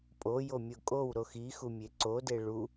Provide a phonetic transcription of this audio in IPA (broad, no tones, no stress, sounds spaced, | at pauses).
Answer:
pʼ o j o mʲ o kʼ o w ɾ o x i x u mʲ e ǀ o d e ɭ u